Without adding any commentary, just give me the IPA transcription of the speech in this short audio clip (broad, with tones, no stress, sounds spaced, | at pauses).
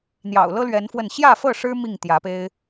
n̪ j ɑ̰˨˩ ʊ̯ l ɤ˦ l ɥ ɛ˨˦ n f w ə˥˨ n ɕ j ä˥˨ f ɤ˥˨ ʂ ɻ̩˦ m i˥˨ ŋ t̪ j ä˨˦ p e˦ ɪ̯